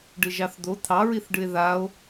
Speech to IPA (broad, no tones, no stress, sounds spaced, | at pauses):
ɖ ɨ ʒ ɑ θ d̪ o t̪ʰ ɑ ɹ i θ ɖ ɨ e̯ ð a o̯